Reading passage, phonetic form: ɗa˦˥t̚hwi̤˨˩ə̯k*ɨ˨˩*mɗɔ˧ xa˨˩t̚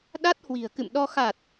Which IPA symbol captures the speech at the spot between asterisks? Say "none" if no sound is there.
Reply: ɨ̰˧˨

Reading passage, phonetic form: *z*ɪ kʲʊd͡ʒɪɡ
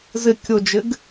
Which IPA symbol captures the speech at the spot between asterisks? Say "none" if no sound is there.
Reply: z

